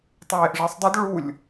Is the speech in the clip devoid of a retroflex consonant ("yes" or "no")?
no